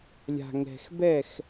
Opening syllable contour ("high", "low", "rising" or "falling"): low